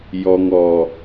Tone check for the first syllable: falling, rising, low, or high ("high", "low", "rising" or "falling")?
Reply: low